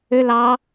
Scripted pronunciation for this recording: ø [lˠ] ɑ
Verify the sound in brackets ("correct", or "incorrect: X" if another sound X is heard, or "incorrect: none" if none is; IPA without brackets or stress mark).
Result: incorrect: l